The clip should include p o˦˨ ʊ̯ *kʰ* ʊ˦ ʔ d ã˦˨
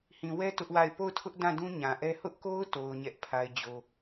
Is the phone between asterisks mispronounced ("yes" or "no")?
yes